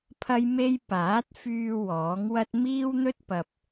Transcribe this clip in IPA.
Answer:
pʰɐ˥jme˥j paː˨˥t̚fyː˧ wɔː˨˥ŋwɐ˥t̚ miː˥wn̪ɵ˥t̚ pɐ˨p̚

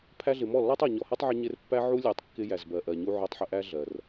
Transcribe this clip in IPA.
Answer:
pʰæ˧ɮɪ˨ mɔ˦˨lːɔ˦tˤɔ˨ ɲɔ˨hɜ˦tˤʕɪ˧ ɲɪ˧r pːæ˦ ʕu˦ lʲæ˧tˤkːɪ˦ jæ˨zbɜ˨ʔɜ˨ɲu˧ ʕɔ˧tˤħɪ˧ʔæ˦ ɮɜ˨r

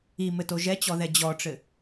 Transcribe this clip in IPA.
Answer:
imɘto ʒɛt͡ɕɔðɛ d͡ʑɔʈ͡ʂɘ

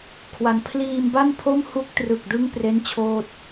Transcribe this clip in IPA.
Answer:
kʰwa˧n pʰliː˧mba˥˩npʰo˥˩m hu˦˥k̚trɯ˨˩k̚dɯ˦˥ŋ pre˥˩nt͡ɕʰoː˥˩t̚

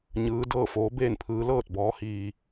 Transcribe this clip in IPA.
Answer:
ɲɯː˧˥ dɤː˥˨foː˧˥ beː˥˨npʰɯː˧˥ lɤː˥˨t̚bɔː˧˥ hiː˧

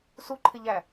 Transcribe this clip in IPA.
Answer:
su ǃʰɪʎæ

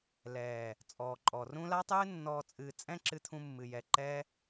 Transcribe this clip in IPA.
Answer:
lɛː˨ | t͡sʼɔː˨ǃʼɔ˨ rũ˦ la˦tˤɨː˦ nːɔː˧t͡sʼɨː˧t͡sʼɛ̃˦ ǁɨ˦t̪ʰũ˦ mːɨ˧jɛ˧ ǃɛ˦

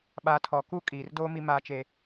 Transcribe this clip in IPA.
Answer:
ɓaː˨tʰɔ˨ kuː˦kʼiː˨rdoː˦ mi˦maː˦t͡ʃe˦

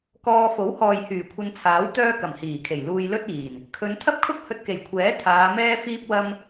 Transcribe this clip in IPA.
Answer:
kɔː˧ fo˨˥whɔː˨j hyː˨˩kʷʰɐ˧nt͡sʰaː˨˥w t̪œː˥kɐ˨˩mhiː˨˩kʰe˨˩j luː˧jlɵ˥t̚iː˨˩n | kʰɵ˨˧nt̪ʰɐ˥p̚kʰʊ˥k̚ hɵ˧t̚ke˨˩jkʷʰɛː˨˥ t̪ʰaː˨˧mɛː˥ fiː˥p̚wɐ˥m

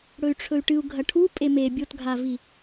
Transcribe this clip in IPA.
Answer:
ɽɵy̯ʈ͡ʂʰɵy̯ʈɨu̯ ɡʱɐʈʰu pʼeme bʲotɡʱavi

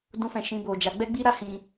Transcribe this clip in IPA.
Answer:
dũ˧fɛ̃˨ ʃĩ˧bo˨d͡ʒa˨˦ ɡ͡bɛ˦ɡ͡bi˦ɾa˦ hĩ˧

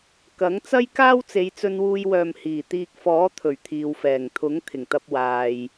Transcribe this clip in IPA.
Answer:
kɐ˨˥ŋ t͡sɐ˥jkaː˥w t͡se˨˧jt͡sɵ˧nwuː˧jwœː˨m hiː˨˩t̪iː˧k̚ fɔː˨˥ t̪ʰɵ˨˩ɥt̪ʰiː˨wfɛː˨˩ŋ t̪ʰʊ˨˥ŋ t̪ʰɪ˨˩ŋt̪ɐ˧p̚ waː˨j

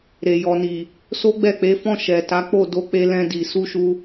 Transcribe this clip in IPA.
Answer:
ɾe˨jɔ˨ni˨ | so˦ɡ͡bɛ˦˨k͡pe˨˦fɔ̃˦˨ ʃɛ˨ ta˨˦k͡po˦˨do˧k͡pe˧ lɛ̃˧ di˨ su˧ʃu˧

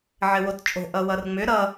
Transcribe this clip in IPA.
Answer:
ʕɘwott͡ʃʼo̤ ʔʌwʌrŋ͡mʏ ɾʌ

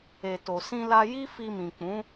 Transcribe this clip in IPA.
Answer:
e˨ to˨sĩ˧la˧ ji˦ fi˧mĩ˨ k͡pũ˨˦

